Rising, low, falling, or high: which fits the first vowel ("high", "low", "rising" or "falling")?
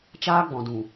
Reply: high